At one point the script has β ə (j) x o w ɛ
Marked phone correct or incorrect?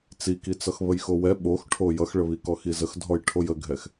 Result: correct